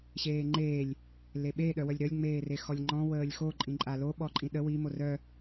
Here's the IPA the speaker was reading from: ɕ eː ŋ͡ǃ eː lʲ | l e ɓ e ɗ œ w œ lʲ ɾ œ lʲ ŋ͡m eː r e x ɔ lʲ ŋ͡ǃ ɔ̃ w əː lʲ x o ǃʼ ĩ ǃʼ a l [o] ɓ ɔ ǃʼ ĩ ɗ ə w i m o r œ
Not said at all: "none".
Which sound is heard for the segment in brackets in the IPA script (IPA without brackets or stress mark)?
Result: o